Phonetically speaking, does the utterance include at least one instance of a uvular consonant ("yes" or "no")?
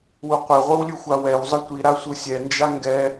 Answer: yes